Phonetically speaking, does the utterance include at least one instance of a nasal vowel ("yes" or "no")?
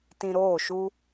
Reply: yes